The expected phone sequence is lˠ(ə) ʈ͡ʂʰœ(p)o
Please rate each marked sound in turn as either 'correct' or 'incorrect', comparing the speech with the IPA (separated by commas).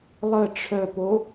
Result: correct, correct